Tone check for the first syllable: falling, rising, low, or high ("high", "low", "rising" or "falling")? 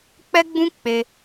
high